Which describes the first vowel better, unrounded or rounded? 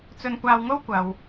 rounded